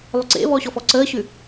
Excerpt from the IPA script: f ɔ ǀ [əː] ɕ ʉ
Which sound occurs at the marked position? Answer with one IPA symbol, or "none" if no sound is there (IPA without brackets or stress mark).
əː